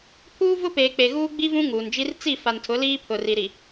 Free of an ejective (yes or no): yes